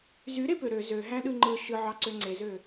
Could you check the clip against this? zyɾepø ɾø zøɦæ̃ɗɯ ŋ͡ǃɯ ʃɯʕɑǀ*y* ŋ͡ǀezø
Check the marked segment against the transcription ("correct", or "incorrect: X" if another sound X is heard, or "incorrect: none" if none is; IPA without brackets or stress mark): incorrect: ø